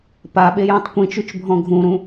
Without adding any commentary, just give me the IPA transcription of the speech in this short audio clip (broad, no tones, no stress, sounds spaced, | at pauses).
p a ɓ e j ũ tˤ kʷ ĩ t͡ʃ ʉ t͡ʃ bʱ ɔ̃ ɡʱ ũ ɾ ũ